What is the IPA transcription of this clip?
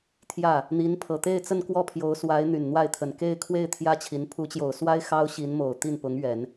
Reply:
t̪ʰ j ä˥˩ | n̪ i˧˥ n pʰ ɤ˨˩ t̪ e˥˧ ɪ̯ t͡s ə˥˧ n k w ɔ˥˩ pʰ j o˧˥ ʊ̯ s w a˧˥ ɪ̯ n̪ y˨˩ n n̪ w a˥˩ ɪ̯ t̪ʰ ə˨˩ n k e˥˧ ɪ̯ kʰ w e˥˩ ɪ̯ t̪ʰ j ä˥ t͡ɕʰ i˧˥ n pʰ u˧˥ t͡ɕ j o˨˩ ʊ̯ s w a˥ ɪ̯ x ɑ˥ ʊ̯ ɕ i˧˥ n m o˨˩ ʊ̯ t̪ i˥˩ n p ʊ˧˥ ŋ ɥ ɛ˨˩˦ n

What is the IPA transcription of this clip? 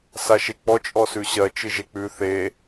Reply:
s a ʃ e k͡p ɔ t͡ʃʼ ɔ s ʉ ɕ ɜ t͡ʃ ɨ ʒ e k͡p ʉ θ e

